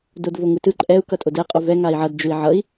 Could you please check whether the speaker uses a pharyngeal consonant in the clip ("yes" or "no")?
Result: yes